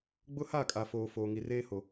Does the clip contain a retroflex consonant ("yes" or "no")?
no